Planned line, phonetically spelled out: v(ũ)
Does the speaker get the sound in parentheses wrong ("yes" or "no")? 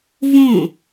yes